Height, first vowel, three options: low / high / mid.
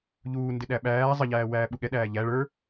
high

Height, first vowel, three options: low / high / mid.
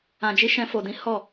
low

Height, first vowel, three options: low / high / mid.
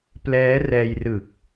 mid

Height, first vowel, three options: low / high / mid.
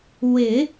high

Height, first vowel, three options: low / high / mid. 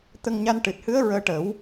mid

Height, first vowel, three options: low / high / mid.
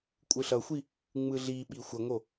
high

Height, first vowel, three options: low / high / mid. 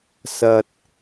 low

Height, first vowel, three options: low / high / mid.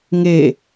mid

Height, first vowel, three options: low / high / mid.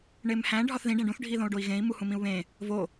mid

